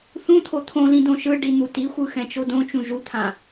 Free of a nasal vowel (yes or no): no